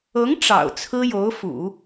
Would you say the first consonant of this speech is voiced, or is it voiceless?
voiced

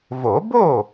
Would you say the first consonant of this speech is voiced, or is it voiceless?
voiced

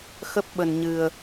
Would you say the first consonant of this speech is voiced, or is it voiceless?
voiceless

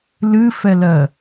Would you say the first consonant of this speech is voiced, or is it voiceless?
voiced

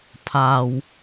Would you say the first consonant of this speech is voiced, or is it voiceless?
voiceless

